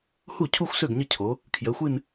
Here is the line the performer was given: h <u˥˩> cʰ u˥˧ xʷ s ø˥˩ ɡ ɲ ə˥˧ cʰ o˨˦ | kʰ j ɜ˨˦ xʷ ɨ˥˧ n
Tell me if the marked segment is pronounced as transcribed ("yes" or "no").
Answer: yes